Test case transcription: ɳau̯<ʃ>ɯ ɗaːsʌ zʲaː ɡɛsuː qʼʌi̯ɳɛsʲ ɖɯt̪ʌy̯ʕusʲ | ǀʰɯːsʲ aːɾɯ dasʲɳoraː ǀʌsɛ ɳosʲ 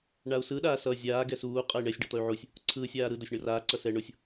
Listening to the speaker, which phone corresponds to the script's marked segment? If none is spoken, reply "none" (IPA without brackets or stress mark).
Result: s